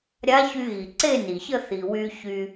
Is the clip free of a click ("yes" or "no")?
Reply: no